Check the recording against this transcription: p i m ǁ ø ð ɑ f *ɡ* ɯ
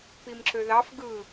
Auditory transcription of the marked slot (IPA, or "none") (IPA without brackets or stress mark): ɡ